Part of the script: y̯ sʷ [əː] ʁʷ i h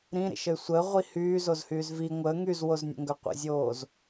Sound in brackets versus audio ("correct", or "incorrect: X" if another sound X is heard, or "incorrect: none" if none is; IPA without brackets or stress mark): correct